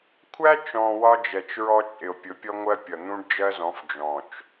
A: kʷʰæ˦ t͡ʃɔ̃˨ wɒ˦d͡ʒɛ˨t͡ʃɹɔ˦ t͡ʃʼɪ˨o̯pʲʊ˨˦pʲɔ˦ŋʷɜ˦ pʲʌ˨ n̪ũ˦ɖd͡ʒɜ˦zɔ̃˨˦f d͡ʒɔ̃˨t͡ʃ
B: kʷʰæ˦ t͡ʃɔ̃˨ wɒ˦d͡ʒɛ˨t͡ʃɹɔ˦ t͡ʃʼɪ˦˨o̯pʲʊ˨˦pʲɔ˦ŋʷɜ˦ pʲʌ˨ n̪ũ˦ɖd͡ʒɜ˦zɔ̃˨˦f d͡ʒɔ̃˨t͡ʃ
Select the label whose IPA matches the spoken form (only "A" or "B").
A